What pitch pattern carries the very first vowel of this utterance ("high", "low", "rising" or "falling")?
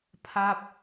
falling